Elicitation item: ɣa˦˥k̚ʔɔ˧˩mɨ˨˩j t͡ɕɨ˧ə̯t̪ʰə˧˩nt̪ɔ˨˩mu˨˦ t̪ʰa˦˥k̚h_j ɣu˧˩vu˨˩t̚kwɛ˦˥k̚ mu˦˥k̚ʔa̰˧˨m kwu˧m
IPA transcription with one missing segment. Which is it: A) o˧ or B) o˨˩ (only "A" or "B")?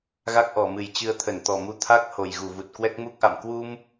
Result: B